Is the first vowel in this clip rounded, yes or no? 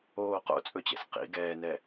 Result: yes